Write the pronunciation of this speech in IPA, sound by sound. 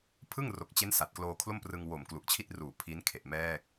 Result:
pʰ ɯ˥˩ ŋ r o˨˩ k̚ t͡ɕ e˦˥ n s a˨˩ t̚ k l oː˧ kʰ l o˥˩ m p r ɯ˧ ŋ w o˨˩ m k l u˨˩ ʔ t͡ɕʰ i˥˩ t̚ r uː˨˩ pʰ i˦˥ n kʰ e˨˩ ʔ m ɛː˥˩ k̚

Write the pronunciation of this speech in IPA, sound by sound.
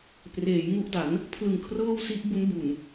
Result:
p r eː˩˦ j ŋ u˦˥ ʔ d a˩˦ n | pʰ l ɯ˨˩ ŋ kʰ r ɤː˥˩ w s i˦˥ ʔ b u˦˥ n b u˨˩ n

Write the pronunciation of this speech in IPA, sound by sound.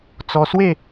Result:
t͡s ɔ˧ s w e˥˧

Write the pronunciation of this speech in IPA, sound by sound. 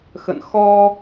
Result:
x ə̰˧˨ n x ɔ˧

